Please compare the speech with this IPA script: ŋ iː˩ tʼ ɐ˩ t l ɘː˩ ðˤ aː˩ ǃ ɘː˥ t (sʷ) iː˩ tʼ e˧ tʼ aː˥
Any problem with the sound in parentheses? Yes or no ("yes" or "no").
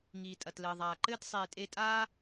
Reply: yes